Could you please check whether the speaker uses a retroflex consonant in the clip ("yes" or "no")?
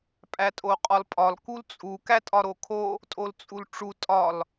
yes